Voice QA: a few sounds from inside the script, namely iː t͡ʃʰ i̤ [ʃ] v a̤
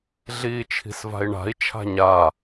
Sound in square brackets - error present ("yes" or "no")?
yes